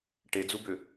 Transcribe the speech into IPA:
ʈed͡zubʏ

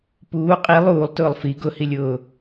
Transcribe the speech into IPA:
puː qʼi lˠuːlˠtʊːlˠ fi ɡʊhilʲʊː

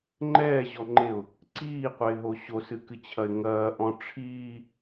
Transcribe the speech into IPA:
ŋ͡ǃɛːʑɔŋ͡ǃeʊ̯ | ǀiːqʷɘɪ̯ɦo ɕosɨkɨt͡ɕʰɐɪ̯ ŋɐːʔɔ̃ ʈ͡ʂʰiː

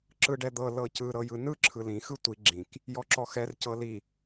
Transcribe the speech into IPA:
ǁɯɖɛd̪ɤ lɤcɯ ɾɤjɯnɯ ǁʰɯlĩ xɯtʷi ɡ͡ǁĩk | jɔǁɔxɛr cɤli

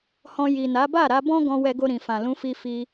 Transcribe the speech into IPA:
hɔ̃˧ ji˨na˨˦ ba˦˨ɾa˧bɔ̃˦ɡɔ̃˧ wɛ˧ɡo˧ɾĩ˨fã˨ lũ˧fi˧ fi˧

